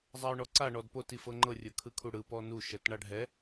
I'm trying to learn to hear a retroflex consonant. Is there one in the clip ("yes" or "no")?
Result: yes